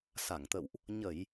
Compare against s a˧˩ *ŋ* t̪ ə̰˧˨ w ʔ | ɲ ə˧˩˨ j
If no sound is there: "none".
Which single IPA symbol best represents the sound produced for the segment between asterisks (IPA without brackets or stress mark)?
ŋ